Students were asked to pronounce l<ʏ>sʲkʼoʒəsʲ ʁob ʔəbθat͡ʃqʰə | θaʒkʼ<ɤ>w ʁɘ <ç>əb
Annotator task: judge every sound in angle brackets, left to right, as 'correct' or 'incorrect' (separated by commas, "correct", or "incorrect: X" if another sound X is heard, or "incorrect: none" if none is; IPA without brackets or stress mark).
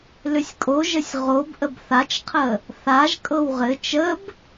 correct, correct, incorrect: t͡ʃ